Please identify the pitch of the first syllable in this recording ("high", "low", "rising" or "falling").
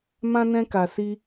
high